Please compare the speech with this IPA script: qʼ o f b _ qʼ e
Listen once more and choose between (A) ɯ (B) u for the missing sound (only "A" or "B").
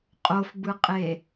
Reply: A